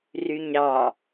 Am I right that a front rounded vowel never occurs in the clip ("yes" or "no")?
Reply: no